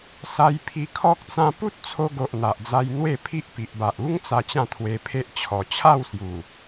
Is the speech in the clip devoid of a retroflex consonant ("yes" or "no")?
yes